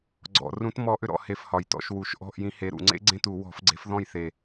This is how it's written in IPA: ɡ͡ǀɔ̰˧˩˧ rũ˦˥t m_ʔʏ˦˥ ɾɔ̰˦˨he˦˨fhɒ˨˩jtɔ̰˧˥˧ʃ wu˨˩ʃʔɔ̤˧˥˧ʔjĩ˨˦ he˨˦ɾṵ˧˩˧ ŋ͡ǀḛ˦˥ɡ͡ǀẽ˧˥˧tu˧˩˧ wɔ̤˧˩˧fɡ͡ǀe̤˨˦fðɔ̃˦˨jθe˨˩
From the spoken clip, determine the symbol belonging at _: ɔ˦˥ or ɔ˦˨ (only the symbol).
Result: ɔ˦˥